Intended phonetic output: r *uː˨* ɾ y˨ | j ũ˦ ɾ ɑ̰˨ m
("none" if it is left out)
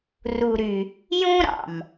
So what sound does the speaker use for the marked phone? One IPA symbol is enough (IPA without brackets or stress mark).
u˨